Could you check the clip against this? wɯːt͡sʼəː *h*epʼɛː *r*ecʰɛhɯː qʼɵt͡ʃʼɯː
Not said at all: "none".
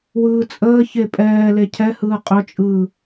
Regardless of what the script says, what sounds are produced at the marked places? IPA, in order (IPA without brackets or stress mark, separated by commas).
ç, l